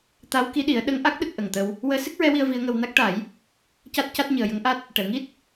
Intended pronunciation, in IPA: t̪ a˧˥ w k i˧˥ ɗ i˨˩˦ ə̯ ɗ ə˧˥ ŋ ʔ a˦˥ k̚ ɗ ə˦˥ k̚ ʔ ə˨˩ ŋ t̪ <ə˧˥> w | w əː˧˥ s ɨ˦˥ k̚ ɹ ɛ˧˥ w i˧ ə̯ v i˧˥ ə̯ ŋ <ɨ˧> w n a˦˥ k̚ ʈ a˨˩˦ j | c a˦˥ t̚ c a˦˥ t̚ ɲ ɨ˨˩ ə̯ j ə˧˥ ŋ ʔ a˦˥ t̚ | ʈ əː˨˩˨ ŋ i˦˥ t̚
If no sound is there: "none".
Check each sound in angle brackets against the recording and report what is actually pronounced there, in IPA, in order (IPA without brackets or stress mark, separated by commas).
ə˧, ə˧